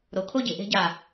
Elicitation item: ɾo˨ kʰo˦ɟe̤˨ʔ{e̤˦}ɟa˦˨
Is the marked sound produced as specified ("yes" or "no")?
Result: yes